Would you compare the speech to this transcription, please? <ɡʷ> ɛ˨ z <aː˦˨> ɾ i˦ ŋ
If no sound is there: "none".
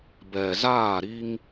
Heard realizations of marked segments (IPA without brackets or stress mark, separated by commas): b, aː˦˨